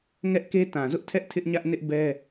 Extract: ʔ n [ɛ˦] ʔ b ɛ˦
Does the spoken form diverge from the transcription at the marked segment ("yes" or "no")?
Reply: yes